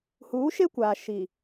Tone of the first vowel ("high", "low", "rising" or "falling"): rising